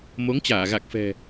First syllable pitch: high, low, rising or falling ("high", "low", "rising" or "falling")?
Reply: rising